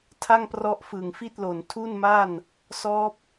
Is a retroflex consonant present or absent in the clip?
absent